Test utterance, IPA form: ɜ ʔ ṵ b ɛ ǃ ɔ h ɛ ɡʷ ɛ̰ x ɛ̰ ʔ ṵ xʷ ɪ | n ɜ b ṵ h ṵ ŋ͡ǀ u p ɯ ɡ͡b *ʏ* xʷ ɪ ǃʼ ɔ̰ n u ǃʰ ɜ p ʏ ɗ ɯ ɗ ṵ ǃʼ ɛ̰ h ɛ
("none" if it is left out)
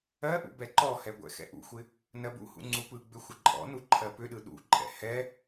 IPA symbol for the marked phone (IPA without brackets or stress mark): ʏ